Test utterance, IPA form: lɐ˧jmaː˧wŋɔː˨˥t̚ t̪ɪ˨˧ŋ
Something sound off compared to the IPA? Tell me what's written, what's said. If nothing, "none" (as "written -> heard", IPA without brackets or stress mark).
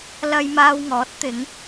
none